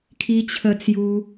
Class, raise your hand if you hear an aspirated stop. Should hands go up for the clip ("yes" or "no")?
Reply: yes